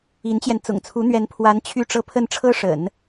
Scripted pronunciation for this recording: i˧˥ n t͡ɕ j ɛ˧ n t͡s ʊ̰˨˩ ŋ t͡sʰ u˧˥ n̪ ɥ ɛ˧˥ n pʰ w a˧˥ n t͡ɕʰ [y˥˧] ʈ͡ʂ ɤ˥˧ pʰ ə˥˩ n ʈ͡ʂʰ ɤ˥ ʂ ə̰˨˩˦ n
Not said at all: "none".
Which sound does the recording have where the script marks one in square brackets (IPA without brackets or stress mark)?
y˥˧